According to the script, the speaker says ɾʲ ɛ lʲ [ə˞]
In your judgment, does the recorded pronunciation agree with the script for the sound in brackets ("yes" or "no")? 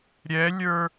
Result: yes